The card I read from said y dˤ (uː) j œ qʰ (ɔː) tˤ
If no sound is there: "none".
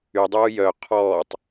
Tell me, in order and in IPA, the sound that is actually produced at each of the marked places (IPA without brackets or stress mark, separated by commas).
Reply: uː, ɔː